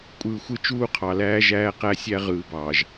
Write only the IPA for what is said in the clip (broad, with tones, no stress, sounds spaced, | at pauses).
kʷʼ ɯː˨ xʷ ɯ˦˨ t͡ʃ uː˦ qʰ ɑ˨ l æː˦ ʒ æː˦ q æ˦ sʲ æ˦ ʁ ɯː˨ b ɑː˨ ʒ